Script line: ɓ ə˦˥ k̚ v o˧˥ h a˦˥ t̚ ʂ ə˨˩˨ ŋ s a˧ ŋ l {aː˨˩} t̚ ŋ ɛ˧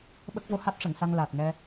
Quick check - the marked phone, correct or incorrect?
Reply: correct